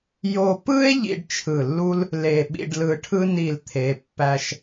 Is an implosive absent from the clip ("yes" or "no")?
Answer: no